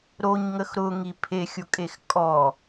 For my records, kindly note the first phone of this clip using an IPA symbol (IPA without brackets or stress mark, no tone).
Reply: ɾ